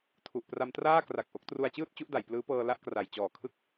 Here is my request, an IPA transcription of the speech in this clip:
tʰ u˨˩ ʔ p r a˧ m t r aː˥˩ k r a˨˩ k̚ ʔ o˦˥ k̚ t r u˧ a̯ t͡ɕ ɯː˥˩ t̚ t͡ɕ u˦˥ ʔ d a˩˦ j p l ɯː˦˥ p ɤː˧ l a˥˩ ʔ k r a˨˩ j t͡ɕ ɔː˨˩ kʰ ɯ˦˥ k̚

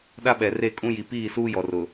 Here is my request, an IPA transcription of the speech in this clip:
ɗ a˦ ɓ ɛ˨ r e˦˨ kʼ ũ˦ j i˨ p iː˦˨ s uː˦ j ɔ˨ r ʊ˨

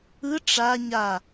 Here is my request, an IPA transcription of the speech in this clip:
ɯ ʈ͡ʂ a ɲ a

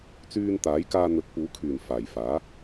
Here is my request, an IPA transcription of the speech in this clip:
t͡s yː˧ n t̪ aː˨˥ j k aː˧ n̪ ɵ˨˥ t̚ p uː˨˥ kʰ yː˨˩ n f aː˨˩ j f aː˨˥

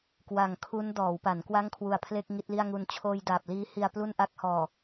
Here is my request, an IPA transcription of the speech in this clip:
k w a˨˩ ŋ kʰ u˦˥ n d ɔː˩˦ w p a˩˦ n k w a˥˩ ŋ kʰ w u˨˩ a̯ pʰ l e˥˩ k̚ ŋ i˥˩ t̚ l i˥˩ a̯ ŋ u˧ n t͡ɕʰ oː˧ j d aː˨˩ p̚ l iː˦˥ h i˧ a̯ p l u˥˩ n ʔ a˥˩ k̚ h ɔː˨˩

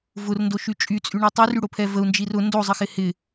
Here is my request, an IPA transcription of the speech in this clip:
v ʊ r n d o ʃ y t͡ʃʼ y t͡sʼ y ɳ i tˤ y r y ɽ o pʰ ɛ v ə u̯ n d͡ʒ i r ʊ n d o zˤ ə x ɪ h ɪ

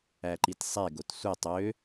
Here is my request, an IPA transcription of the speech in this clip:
æ ǃ i t sˤ e ɡ o t sʷ e tˤ ø

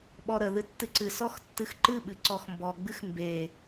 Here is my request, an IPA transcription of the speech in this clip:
ɓ ɔ ɾ ə ð ɨ tː ɨ ǀ ɨ s ɔ x tː ɨ x ǃ ɨ ɓ ɨ ǀ ɔ x m b ɔ ɡ͡b ɨ x m b e

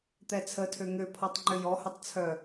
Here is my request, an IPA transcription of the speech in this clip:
t̪ ɛ t͡sʰ ə tʰ ø ŋ ø pʰ ɔ tˤ ŋ͡ǃ ʏ j ɔ h ʏ tˤ t͡sʰ œ

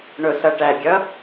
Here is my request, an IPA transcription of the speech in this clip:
ɳ ʊ s ʌ ʈ æ ɡʲ ʌ

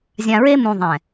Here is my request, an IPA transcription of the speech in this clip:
zʲ ã˨ ɹ e˦ m ũ˨ ðˤ ɛ̃˨

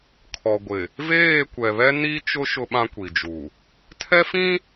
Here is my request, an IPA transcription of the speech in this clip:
kʰ ɔ˨ ɡʷ ɪ˨ | v eː˦˨ kʷ ɛ˨ β ɛ˦ n i˦ t͡ʃ ʊ˦ ʃ ʊ˦ ɓ ã˦ kʷ i˨ d͡ʒ u˨ | tʰ ɛ˦ f ĩ˦

